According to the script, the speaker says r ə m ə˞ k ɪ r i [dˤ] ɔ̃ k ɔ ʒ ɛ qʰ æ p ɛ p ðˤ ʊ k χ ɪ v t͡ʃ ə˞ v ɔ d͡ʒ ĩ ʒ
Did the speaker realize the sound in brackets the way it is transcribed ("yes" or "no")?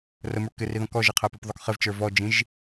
no